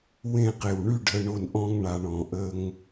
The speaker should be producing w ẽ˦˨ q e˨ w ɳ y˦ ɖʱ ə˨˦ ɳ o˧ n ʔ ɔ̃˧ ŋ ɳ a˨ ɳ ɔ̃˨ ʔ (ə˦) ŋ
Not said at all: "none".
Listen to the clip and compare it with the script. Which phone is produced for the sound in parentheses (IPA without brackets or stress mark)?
ə˧